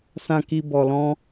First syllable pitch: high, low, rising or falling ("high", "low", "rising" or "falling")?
low